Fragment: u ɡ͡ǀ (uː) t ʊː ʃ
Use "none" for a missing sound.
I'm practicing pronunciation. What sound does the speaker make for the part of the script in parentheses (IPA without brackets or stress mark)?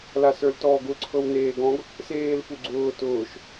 ʊː